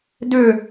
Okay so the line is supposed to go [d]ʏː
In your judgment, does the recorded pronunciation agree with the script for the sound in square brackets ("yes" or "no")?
yes